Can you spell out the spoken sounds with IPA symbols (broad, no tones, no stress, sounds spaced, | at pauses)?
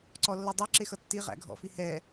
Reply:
ǀ ɔ lː ʌ dˤ e ǁ e x ʌ tː i ʁ æ̰ ɡʱ ɔ̰ f i h ɛ